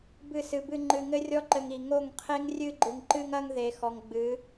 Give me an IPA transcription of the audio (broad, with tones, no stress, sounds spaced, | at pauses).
b ɨ˦˨ s ɨ˧ b ɨ˧ ŋ͡ǃ ɨ˧ ŋ ɘ˦ rʲ ɔ˦ ǃ ɘ˧ ŋ i˨ ŋ o˦˨ ŋ qʰ e˦ ŋ rʲ ɨ˧ ɡ͡ǃ ɨ˨ ŋ ǃ ɨ˧ ŋ ɐ˧ ŋ ð e˨ x ɔ˨ ŋ ɡ͡b ɨ˨˦